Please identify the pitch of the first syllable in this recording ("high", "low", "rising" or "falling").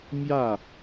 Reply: falling